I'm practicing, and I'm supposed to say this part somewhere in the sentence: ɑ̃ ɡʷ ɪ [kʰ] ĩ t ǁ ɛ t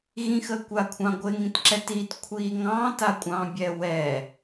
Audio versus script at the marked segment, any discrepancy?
yes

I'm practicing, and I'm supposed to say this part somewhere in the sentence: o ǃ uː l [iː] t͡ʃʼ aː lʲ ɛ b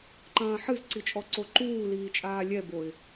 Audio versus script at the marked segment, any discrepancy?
no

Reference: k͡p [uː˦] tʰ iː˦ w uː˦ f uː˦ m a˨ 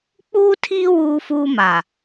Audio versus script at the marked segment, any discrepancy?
no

